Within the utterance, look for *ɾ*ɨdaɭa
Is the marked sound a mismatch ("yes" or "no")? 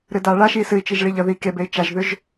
no